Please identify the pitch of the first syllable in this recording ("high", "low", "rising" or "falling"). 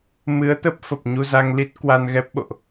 rising